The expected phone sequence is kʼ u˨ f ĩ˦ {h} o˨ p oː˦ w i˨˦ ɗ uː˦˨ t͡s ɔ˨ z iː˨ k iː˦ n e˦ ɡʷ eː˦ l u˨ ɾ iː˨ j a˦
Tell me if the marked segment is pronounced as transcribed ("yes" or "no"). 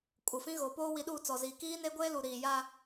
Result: no